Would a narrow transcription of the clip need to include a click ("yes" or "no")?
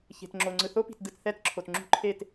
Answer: yes